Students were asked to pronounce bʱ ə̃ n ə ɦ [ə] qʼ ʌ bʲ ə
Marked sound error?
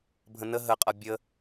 no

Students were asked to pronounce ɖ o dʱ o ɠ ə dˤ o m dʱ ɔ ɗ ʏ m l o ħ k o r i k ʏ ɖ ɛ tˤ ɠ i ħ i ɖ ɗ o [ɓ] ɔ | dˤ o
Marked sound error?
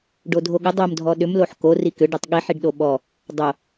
no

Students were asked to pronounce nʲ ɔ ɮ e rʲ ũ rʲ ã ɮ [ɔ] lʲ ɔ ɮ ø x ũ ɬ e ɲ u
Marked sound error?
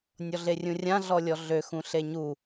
no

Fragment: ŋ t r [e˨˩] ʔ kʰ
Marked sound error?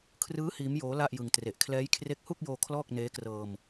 no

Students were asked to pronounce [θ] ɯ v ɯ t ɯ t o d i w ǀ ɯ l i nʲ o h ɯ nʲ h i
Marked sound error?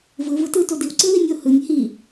yes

